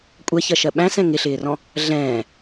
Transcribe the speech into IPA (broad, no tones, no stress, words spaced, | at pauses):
kʷʼɛçɜʃɜ ɓæ̃sɛ̃ ŋɪɬɪːrɔ̃ | ɮɛ̃ː